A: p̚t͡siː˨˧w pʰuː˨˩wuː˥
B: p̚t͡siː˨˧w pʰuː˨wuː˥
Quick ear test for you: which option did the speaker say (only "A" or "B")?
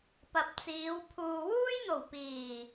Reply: B